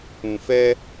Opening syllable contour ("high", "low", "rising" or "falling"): low